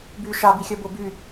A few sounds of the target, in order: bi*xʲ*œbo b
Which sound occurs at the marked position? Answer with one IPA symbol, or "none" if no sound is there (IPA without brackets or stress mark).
xʲ